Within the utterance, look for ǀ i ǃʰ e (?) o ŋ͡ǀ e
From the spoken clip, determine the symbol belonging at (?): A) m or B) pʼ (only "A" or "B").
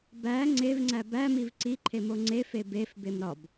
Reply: A